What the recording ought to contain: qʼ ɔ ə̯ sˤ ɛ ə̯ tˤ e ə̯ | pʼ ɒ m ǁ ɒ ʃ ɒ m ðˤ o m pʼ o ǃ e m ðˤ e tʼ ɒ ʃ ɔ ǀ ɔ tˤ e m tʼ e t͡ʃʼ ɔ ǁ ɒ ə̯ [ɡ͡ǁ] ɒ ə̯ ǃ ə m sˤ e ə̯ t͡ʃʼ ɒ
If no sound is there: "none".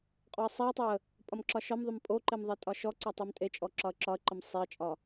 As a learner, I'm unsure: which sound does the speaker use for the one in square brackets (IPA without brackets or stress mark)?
ǁ